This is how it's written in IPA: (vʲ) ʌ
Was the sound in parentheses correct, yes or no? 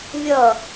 yes